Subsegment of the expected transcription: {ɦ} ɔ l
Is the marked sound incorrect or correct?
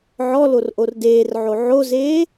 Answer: incorrect